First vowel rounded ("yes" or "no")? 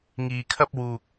no